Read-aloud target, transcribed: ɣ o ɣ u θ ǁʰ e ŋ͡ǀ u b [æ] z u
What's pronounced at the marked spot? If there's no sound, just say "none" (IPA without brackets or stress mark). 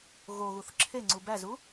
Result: æ